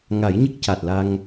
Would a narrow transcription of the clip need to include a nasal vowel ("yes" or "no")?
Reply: no